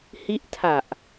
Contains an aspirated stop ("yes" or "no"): yes